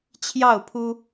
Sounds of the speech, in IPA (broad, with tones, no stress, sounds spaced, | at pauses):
t͡ɕʰ j ɑ˥˨ ʊ̯ pʰ u˦